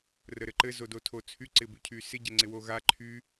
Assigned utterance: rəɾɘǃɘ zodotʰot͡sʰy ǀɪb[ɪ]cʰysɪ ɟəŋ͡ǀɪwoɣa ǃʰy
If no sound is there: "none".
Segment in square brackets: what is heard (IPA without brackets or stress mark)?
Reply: y